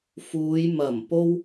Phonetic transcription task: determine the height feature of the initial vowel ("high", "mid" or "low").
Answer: high